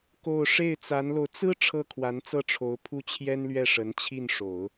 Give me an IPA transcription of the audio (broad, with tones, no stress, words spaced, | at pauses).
ko˥˧ʊ̯ ʂe˥˩ɪ̯t͡sa˧˥nlo˧ʊ̯ t͡sɹ̩˥ ʈ͡ʂʰɤ˥˩kʰwa˧˥nt͡sɤ˥˩ʈ͡ʂʰo˧˥ʊ̯ pʰu˥˩t͡ɕʰjɛ˥nlɥɛ˥˩ ʂə˧˥n t͡ɕʰi˥˩nʂo˨˩˦ʊ̯